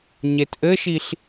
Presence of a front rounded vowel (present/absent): absent